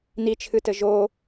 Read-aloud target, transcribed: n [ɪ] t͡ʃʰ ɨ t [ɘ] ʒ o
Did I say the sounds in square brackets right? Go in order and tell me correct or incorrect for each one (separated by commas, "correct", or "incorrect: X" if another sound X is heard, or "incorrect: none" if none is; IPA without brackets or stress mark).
incorrect: i, correct